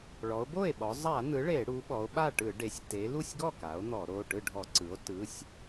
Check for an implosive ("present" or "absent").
present